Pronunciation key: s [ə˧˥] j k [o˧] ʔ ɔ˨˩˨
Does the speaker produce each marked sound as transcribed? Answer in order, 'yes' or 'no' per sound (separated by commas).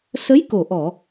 yes, no